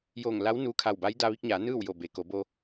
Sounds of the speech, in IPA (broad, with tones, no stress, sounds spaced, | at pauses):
j oː˧˩ ŋ l a˧˥ w n uː˧ kʰ a˧˩ w b a˧˥ j d a˧ ʋ i˧ k̚ ɲ aː˩˧ n ɯː˥˨ w j o˧˩ b e˩˧ k o˩˧ b o˧